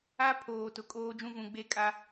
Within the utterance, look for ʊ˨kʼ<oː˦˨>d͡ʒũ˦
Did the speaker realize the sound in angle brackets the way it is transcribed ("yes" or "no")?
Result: no